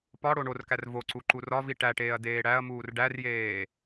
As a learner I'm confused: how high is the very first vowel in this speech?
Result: low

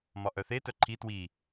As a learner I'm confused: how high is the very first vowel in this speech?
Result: low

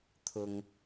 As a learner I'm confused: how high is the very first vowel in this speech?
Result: high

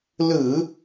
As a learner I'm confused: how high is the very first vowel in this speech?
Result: high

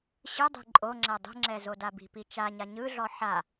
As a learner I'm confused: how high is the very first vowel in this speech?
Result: high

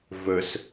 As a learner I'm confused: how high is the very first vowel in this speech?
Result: mid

